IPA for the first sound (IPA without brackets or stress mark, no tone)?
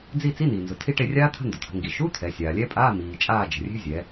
d͡z